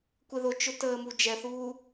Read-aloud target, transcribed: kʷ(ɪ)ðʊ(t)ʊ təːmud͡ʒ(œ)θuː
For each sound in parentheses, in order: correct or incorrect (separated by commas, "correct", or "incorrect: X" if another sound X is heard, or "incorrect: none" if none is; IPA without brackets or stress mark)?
correct, incorrect: t͡ʃ, incorrect: ɛ